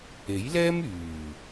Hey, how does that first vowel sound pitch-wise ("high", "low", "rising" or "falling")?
rising